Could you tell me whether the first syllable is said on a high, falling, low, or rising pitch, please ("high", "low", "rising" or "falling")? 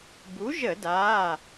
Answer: rising